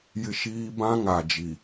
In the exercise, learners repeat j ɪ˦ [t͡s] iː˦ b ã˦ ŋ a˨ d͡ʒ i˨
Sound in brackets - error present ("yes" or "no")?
yes